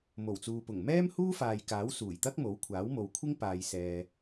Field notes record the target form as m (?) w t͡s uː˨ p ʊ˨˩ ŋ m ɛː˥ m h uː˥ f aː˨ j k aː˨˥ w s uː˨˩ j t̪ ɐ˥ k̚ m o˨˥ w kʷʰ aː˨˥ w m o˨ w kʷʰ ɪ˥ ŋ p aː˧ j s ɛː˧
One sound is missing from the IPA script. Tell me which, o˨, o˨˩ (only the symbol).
o˨˩